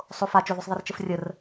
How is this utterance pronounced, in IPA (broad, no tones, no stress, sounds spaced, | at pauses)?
sˤ o f a t͡ʃ o ð ø sˤ ðˤ ɛ r t͡ʃ ə f rʲ ə r